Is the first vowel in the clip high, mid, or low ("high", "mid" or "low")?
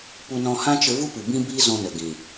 high